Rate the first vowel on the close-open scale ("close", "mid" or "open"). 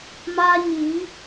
open